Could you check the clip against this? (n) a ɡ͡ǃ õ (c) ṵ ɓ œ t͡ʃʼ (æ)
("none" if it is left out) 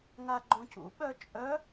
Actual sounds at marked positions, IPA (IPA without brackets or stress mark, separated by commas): ŋ, c, œ